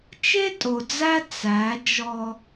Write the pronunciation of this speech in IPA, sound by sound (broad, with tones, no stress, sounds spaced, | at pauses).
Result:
t͡ʃ e˦ tʼ o˨ d͡z æ˦ t͡s æ˨˦ d͡ʒ ɔ˦